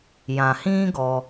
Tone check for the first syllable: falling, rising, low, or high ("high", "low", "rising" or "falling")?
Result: low